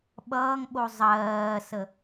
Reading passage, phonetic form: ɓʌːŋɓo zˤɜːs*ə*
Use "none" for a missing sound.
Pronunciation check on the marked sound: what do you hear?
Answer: ə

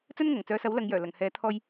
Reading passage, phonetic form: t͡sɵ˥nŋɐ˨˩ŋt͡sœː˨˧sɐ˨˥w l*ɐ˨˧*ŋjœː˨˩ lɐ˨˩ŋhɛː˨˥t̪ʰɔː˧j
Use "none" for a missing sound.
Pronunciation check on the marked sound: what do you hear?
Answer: ɐ˨˧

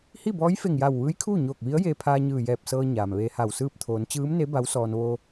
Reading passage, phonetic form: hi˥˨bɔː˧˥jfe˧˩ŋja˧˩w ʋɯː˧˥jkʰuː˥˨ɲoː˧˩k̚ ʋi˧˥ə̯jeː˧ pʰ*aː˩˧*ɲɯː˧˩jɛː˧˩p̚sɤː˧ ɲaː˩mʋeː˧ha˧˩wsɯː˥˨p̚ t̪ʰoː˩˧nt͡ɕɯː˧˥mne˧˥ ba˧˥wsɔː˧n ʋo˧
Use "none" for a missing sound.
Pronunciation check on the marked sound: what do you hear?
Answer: aː˧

